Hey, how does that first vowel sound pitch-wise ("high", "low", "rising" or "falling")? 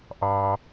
low